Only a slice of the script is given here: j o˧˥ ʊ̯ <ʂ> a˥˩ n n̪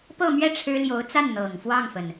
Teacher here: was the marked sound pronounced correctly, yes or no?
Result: no